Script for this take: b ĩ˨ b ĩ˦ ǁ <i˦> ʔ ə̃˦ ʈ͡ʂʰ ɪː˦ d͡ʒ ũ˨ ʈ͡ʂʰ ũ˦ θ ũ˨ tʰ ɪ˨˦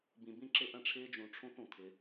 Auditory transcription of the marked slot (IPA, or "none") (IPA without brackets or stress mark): ɪ˦